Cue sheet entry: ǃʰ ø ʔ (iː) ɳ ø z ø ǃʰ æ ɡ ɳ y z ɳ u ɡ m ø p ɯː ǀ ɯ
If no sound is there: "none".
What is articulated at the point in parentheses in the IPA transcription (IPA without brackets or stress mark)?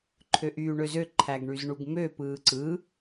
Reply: yː